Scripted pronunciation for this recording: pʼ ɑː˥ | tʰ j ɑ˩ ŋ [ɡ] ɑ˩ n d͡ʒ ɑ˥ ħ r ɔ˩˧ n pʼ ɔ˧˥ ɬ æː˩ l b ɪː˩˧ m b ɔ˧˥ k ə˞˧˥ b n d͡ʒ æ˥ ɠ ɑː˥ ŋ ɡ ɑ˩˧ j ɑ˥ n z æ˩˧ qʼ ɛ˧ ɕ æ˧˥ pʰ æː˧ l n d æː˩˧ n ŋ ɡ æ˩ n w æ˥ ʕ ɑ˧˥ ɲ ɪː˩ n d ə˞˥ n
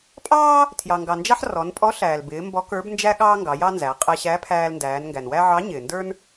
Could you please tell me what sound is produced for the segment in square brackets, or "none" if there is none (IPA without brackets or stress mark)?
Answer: ɡ